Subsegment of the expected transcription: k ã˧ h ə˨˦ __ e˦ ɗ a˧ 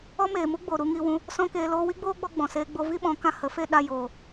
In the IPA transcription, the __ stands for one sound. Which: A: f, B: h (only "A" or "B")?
A